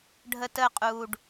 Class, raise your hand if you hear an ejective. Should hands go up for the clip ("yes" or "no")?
yes